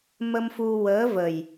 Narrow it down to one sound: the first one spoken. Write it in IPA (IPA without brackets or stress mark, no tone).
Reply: m